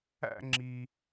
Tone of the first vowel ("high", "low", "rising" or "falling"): falling